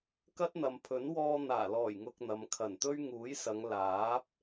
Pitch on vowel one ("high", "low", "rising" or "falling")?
high